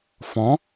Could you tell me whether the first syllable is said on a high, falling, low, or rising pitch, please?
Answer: rising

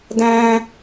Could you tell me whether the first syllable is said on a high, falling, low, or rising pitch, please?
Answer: high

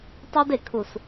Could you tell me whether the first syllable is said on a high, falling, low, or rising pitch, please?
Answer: high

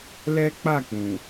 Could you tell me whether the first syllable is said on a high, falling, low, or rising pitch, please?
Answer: high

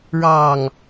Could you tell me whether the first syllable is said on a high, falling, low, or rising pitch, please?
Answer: low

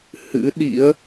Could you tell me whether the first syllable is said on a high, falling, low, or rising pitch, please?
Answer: rising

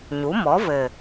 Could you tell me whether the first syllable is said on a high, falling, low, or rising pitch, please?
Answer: rising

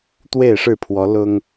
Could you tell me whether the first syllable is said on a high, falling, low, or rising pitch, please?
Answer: falling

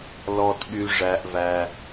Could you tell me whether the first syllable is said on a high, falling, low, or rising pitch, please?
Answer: low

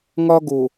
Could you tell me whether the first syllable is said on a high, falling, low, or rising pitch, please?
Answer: high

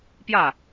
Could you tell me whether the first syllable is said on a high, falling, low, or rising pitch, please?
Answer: falling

